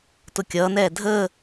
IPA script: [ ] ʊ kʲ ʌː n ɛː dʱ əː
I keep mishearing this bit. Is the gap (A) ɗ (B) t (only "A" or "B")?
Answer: B